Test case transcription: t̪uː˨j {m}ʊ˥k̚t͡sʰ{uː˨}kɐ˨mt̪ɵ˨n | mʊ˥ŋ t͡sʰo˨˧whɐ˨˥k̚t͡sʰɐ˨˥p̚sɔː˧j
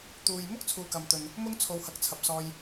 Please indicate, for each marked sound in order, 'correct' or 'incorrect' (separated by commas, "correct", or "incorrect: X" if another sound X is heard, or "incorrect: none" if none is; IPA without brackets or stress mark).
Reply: correct, correct